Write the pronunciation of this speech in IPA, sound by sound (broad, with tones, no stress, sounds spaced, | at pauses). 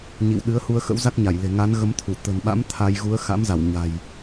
ɲ ḭ˧˨ w ɗ ɨ˨˦ ə̯ h u˧ ə̯ x ə̰˧˥ w z a˦˥ k̚ ɲ a˧˩ j l e̤˨˩ ŋ a˨˦ n ɣ ə˨˦ m t̪ʰ u˧˩ t̪ ə̤˨˩ n ɓ a̰˧˥ m t̪ʰ a˧ j ɣ u˨˦ ə̯ x a̰˧˥ m z a˧˩ w ɲ a̤˨˩ j